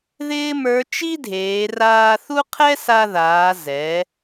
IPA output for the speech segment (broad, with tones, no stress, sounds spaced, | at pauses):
ð ɪː˥ m ə˞˧˥ t͡ʃ i˥ dʱ eː˩˧ r aː˧ θ u˥ qʰ ɛ˥ s a˧ ð aː˩˧ z ɛ˩˧